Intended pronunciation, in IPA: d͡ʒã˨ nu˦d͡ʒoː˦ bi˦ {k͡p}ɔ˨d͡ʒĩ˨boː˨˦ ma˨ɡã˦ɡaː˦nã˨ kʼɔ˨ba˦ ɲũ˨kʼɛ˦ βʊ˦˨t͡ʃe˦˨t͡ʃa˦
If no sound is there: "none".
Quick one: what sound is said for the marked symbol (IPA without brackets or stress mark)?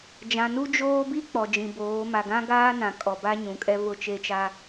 k͡p